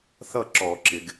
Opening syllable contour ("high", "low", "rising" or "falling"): falling